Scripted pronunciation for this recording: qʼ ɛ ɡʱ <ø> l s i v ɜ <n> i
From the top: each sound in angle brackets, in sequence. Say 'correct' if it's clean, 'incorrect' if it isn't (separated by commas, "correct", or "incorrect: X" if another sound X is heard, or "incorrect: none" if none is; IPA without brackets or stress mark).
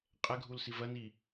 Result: incorrect: u, correct